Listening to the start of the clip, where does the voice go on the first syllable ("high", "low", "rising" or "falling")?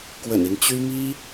low